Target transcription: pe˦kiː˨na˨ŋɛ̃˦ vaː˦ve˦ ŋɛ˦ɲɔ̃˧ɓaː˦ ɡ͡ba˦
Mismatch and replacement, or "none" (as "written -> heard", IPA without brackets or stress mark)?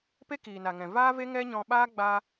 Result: ɛ̃˦ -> ɛ̃˨